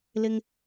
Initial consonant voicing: voiced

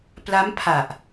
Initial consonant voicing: voiceless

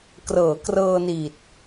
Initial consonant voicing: voiceless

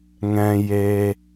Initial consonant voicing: voiced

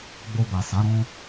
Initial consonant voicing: voiced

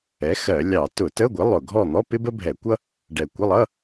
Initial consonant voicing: voiceless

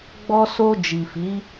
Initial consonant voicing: voiced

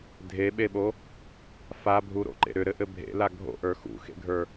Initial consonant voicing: voiced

